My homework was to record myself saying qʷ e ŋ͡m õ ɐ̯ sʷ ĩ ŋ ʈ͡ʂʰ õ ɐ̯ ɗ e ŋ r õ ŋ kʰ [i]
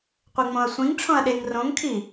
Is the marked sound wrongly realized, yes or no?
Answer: no